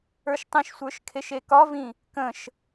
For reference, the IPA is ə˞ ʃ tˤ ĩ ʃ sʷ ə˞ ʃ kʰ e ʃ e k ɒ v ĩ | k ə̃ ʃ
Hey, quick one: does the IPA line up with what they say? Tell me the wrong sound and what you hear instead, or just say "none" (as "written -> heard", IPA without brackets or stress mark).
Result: none